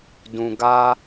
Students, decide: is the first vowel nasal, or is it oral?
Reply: nasal